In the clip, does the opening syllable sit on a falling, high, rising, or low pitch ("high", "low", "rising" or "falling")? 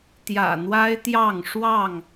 low